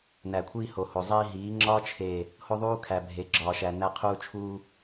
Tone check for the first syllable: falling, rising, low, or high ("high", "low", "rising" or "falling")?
low